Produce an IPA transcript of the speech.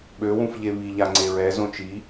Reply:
ɓ ø w ũ f ʎ e β i ʎ a ŋ͡ǀ e ɹ ɛ z õ t͡ʃ i

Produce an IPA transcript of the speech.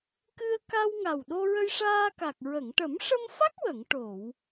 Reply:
k ɨ˧ ə̯ k a˧ w ŋ a˨˩ w ɗ o˧ ɹ ə˧ j ʂ aː˧ k a˨˩ k̚ ɹ ə˨˩˨ ŋ ʈ ə˨˩˦ m ʂ ə˧ m f a˦˥ k̚ w ə˨˩˨ ŋ ʈ o˨˩˨ w

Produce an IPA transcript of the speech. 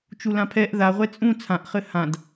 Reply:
t͡ʃ u l ã pʰ ɛ ʔ ð a ʁʷ ɛ t͡sʼ ũ t͡sʰ ã ʔ χ ɘ h ã d

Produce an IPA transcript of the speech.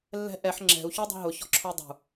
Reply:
lː ɛ̤ ʔ ɛ ħ ŋ͡ǁ ɛ̤ u̯ ç y dˤ ɛ̤ ɦ ʊ ç ɔ̤ ǁʰ ʊ y̯ dˤ ṳ

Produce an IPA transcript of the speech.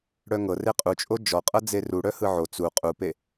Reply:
ɽ œ ŋ ɤ r e qʼ u t͡ʃʼ o d͡ʒ ɔ qʼ ɤ d͡z e r u ɽ œ h ɯ ʕ o t͡s u qʼ u p e

